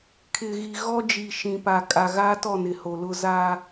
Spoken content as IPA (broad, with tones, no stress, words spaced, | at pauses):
kʰɪ˨ɣi˨ ɣɔ˦d͡ʒi˨ ʃĩ˨pa˨ kʼa˨ɣaː˦tɔ˦˨nɪ˨ ho˨lʊ˦ za˦